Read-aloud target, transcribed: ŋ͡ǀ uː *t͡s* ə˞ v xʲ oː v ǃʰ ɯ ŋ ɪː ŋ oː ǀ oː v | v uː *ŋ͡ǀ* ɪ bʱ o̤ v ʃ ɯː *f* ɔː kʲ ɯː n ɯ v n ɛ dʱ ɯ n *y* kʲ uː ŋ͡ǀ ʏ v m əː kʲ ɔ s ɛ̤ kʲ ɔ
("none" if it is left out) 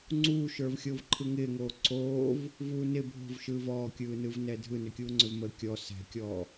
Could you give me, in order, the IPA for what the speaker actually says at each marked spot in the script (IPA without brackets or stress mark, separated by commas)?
ʃ, n, v, ʏ